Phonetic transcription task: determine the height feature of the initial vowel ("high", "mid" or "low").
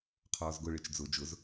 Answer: mid